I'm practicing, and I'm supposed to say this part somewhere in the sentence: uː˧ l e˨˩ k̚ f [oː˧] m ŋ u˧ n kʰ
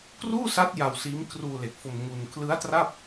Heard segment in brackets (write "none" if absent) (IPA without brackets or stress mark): o˧